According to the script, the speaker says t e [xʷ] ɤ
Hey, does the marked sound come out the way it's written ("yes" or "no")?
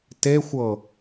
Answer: yes